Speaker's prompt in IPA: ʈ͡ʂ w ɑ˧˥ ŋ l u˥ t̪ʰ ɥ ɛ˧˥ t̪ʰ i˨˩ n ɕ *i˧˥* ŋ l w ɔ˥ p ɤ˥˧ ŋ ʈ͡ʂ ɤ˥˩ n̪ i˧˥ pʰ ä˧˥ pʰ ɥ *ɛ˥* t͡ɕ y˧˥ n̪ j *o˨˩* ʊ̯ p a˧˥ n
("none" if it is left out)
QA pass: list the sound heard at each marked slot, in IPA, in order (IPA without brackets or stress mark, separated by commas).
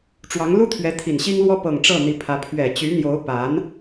i˥, ɛ˨˩, o˧˥